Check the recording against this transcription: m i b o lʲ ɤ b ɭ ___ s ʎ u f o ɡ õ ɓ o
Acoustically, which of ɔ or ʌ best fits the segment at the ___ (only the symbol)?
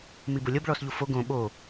ɔ